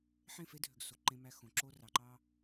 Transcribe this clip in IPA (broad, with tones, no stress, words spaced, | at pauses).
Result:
ħẽ˦˨fe˦dʱø˨ɡ so˨ǃẽ˦mæ˦ xõ˨ǁo˦ rɑ˨ǃɑ˦